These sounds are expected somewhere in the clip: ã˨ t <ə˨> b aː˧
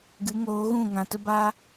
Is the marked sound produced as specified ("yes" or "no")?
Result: no